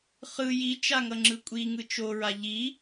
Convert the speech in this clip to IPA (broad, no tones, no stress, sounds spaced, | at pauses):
χ ɯ j i t͡ʃ a ŋ ʌ ŋ͡ǁ ɯ kʷʼ i ŋ ɯ t͡ʃ o ɹ a ʎ i